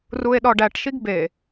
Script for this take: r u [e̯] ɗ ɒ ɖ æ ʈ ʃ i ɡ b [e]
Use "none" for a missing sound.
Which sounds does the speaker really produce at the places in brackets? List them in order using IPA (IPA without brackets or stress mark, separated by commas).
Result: e̯, e